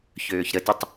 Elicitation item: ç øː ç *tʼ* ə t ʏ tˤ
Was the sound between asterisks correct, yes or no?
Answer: no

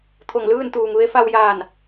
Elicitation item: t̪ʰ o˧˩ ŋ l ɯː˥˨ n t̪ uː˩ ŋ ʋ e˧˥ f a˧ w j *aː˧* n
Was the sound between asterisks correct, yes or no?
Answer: no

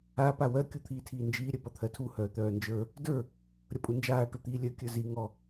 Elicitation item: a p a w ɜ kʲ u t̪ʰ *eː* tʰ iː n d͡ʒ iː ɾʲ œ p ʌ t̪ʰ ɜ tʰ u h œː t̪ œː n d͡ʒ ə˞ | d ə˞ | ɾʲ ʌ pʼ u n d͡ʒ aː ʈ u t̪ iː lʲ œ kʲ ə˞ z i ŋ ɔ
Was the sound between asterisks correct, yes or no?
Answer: no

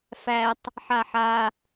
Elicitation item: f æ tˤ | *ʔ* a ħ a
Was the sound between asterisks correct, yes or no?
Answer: no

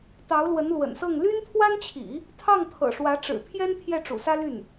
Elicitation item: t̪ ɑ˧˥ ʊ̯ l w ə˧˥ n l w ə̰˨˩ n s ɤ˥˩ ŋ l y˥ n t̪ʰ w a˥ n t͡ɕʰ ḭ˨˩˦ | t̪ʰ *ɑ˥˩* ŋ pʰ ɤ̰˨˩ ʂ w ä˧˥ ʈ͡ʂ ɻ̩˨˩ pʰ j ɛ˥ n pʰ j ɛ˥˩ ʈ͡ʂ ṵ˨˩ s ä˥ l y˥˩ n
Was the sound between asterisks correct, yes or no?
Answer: yes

